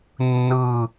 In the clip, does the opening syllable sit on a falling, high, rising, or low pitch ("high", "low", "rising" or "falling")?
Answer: falling